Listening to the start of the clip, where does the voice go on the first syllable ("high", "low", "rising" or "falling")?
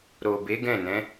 low